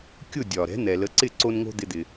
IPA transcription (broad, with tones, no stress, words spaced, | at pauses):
kʲʊ˥˩ dʲɒ˩ ɾɛ̤˩˥n̪ɛ˩lə˩˥ǀɪ˥˩ ǀo˧nŋo̤˧ d̪ɪ˧d̪ɪ˩